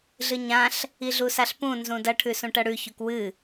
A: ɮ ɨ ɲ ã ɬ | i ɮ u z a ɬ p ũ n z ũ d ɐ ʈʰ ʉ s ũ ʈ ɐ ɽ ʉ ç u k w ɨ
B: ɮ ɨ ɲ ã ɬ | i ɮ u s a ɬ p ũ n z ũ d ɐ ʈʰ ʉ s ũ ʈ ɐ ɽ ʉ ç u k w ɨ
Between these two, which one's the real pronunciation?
B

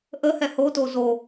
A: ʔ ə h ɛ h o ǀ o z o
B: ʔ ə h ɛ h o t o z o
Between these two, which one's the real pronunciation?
B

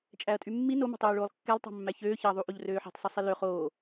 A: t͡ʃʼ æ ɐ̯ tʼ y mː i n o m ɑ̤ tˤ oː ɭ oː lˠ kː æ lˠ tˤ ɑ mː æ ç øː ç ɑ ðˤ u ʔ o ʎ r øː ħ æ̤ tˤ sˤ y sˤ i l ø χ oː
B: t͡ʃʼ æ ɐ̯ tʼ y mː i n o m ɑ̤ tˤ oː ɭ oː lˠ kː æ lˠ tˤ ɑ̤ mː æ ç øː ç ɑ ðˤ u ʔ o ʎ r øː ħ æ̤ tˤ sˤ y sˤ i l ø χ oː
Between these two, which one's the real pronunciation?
B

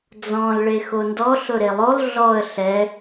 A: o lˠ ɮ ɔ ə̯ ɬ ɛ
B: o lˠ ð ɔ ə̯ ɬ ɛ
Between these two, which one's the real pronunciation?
A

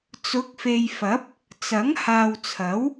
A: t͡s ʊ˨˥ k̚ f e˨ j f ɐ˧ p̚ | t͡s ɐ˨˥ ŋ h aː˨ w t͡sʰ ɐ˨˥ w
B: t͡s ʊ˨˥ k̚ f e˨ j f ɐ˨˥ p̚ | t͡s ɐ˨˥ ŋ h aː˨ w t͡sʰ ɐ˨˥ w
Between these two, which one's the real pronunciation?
B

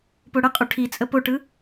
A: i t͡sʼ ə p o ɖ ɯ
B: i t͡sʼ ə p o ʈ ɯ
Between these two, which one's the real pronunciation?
B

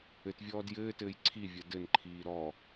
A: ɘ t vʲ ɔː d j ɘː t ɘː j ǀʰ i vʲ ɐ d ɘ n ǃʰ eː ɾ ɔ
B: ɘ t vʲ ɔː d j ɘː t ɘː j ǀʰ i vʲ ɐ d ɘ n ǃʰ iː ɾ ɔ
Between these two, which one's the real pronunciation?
B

